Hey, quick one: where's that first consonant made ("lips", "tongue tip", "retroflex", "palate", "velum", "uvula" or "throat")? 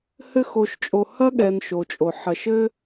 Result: throat